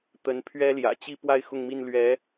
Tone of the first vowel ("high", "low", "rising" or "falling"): rising